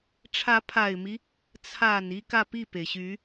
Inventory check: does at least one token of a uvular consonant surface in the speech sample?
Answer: no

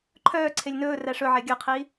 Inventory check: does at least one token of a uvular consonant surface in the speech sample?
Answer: yes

